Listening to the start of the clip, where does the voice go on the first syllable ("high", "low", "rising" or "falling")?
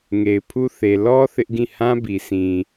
low